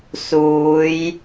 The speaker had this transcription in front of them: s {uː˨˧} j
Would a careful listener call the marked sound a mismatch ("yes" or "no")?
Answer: no